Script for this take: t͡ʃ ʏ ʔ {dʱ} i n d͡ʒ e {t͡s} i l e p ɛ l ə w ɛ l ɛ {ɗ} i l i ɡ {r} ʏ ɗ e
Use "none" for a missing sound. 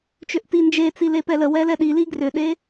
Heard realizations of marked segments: t, t͡s, ɗ, r

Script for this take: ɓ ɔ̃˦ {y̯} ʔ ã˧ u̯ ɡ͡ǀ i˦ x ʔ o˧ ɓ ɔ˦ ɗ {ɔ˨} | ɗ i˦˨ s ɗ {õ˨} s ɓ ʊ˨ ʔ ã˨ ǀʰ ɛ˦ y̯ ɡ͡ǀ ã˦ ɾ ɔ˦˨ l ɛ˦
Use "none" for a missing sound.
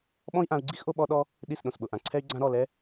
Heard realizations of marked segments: i̯, ɔ˦, õ˨

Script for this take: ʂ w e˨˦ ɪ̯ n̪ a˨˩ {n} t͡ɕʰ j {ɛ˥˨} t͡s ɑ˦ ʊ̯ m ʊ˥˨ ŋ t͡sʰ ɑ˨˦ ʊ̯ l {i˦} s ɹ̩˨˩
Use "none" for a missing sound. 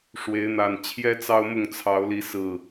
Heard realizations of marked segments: n, ɛ˦, i˨˦

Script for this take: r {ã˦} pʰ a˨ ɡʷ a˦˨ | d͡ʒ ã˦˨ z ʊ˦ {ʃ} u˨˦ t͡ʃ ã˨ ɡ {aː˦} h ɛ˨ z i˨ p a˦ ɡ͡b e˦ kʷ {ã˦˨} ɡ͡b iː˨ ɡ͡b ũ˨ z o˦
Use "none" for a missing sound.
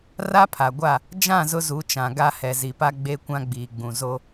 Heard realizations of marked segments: a˦, z, a˦, ã˦

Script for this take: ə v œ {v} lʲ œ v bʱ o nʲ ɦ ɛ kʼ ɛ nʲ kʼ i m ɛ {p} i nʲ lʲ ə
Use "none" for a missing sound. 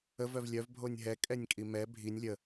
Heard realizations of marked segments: v, bʱ

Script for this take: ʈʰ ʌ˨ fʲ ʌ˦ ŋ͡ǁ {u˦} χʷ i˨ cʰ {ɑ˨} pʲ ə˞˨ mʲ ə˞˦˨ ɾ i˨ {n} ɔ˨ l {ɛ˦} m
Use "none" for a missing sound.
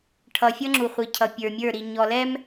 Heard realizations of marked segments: u˨, ʌ˨, ɲ, ɛ˦

